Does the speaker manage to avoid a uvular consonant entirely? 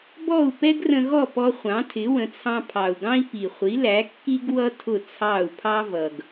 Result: no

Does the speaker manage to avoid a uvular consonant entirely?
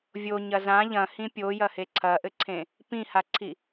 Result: yes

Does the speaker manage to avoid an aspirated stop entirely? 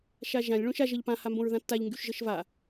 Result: yes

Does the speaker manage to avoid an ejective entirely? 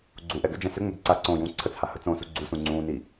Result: yes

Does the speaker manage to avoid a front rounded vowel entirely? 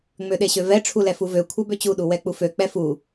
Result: no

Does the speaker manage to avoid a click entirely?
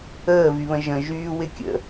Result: yes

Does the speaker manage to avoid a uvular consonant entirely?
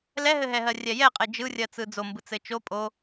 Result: no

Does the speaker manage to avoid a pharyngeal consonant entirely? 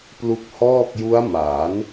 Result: yes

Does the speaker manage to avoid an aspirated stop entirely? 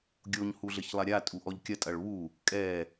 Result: yes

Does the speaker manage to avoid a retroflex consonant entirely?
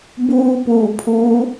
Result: yes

